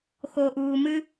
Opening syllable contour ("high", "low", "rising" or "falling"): low